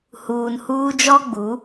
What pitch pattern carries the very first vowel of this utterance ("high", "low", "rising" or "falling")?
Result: low